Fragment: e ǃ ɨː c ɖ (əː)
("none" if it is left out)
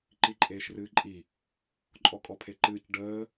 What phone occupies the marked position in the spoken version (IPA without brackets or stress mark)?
əː